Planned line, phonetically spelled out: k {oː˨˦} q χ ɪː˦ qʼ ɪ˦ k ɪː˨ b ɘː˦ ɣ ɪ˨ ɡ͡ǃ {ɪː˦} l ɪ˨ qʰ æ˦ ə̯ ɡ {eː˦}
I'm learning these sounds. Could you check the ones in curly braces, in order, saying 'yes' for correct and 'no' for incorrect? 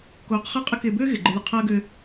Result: yes, no, no

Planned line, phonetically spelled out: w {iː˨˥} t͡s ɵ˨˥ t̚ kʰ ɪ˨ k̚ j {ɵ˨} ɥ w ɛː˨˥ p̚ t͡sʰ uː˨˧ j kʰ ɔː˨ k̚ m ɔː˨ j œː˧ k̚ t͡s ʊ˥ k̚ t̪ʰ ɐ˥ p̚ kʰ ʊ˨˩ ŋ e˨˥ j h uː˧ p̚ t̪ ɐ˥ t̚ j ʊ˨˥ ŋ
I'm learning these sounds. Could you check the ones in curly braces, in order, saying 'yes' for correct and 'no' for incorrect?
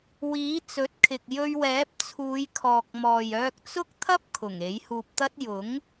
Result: yes, no

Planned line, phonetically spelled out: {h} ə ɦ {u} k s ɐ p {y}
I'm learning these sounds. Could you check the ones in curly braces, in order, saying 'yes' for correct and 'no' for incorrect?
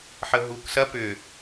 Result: no, yes, no

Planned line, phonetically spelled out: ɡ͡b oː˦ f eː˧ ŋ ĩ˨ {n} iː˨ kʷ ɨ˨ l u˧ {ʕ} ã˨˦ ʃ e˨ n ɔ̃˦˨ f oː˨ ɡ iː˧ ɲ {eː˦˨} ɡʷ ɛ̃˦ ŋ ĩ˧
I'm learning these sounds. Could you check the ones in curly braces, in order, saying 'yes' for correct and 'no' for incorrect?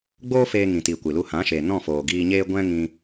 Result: no, no, no

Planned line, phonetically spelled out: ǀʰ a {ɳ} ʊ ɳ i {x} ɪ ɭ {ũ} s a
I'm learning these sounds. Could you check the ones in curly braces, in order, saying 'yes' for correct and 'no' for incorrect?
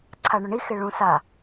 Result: yes, yes, yes

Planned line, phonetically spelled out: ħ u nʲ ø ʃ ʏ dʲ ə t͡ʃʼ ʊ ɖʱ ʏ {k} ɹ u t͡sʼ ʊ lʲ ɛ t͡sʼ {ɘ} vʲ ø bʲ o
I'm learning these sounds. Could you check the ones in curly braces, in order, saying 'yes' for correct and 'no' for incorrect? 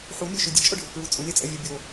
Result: yes, no

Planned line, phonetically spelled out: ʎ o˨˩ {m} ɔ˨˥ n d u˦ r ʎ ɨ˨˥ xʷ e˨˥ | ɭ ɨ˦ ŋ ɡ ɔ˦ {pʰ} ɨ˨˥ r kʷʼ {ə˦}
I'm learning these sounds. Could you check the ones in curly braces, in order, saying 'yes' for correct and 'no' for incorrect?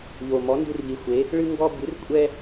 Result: yes, no, no

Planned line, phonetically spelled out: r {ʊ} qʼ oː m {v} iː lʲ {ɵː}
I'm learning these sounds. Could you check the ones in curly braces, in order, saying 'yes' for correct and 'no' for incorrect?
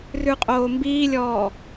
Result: no, no, no

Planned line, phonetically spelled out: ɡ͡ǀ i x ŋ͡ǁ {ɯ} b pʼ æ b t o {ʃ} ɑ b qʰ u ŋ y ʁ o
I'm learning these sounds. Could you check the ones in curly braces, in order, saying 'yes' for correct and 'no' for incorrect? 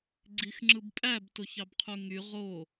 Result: yes, no

